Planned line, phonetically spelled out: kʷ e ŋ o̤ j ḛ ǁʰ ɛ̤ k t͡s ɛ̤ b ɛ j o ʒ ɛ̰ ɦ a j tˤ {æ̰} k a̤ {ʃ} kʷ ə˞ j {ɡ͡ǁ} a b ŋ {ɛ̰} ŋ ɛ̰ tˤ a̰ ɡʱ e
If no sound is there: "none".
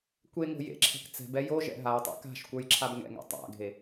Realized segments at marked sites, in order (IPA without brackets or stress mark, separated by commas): ɛ̰, ʃ, ǁʰ, ɛ̰